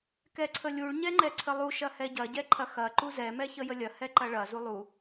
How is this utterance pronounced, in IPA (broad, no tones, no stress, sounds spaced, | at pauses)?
k ɛ ǀʰ ə lʲ u ɭ ɲ ɛ ŋ͡ǃ ɛ ǀʰ ə lˠ u ʃ ɐ h ɛ ɟ ɐ ɟ ɛ ǃʰ ɐ x ɐ ǃ u z ɛ m ɛ ç ə j ə lʲ ɐ h ɛ ǃ ɐ ɭ ɐ z u lˠ u